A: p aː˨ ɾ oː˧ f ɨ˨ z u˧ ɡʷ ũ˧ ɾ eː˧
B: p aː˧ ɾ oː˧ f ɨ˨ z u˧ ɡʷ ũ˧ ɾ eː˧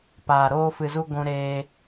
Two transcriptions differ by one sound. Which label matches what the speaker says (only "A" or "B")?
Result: A